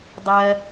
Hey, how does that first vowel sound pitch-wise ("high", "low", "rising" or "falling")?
high